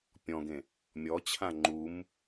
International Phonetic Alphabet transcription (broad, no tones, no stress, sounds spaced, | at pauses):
pʲ ɔ̃ ɡ ẽ | mʲ ɔ t͡ɕʰ ã ŋ͡ǃ u m